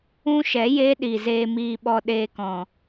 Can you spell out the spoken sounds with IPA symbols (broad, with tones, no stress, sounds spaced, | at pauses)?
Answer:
ũ˦ ʃ ɛ˨˦ j eː˦ ɗ i˨ z eː˧ m iː˧ ɓ ɔ˧ ɗ eː˧ k ɔ̃˨